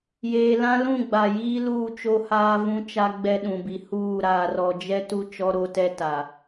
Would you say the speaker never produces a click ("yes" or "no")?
yes